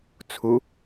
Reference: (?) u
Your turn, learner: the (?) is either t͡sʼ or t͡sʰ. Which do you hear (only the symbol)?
t͡sʰ